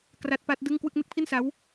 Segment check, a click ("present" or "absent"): absent